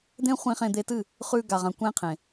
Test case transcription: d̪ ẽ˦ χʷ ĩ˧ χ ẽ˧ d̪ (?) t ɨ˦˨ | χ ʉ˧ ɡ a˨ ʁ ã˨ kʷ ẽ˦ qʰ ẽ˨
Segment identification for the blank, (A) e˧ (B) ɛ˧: A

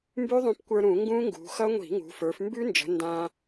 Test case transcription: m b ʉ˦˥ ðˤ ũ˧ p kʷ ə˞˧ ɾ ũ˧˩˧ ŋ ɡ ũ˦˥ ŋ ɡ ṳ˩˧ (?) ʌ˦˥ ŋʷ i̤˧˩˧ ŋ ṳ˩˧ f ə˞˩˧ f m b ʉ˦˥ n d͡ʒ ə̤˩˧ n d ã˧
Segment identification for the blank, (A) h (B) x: B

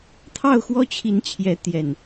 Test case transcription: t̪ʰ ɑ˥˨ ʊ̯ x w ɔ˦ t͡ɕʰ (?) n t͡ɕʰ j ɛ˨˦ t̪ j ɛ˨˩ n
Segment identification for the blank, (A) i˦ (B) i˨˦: B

